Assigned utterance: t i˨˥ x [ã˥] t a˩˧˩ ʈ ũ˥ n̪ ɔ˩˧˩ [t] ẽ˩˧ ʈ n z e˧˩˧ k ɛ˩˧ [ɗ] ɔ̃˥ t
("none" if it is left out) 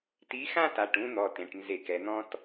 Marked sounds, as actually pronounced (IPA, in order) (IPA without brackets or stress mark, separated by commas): ã˥, t, n̪